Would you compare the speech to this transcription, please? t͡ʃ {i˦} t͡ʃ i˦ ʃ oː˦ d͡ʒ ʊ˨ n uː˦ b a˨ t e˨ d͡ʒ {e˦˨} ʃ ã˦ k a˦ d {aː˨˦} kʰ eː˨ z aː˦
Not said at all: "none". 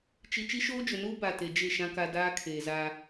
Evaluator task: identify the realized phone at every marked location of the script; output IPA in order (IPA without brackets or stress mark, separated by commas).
i˨, e˦˨, aː˦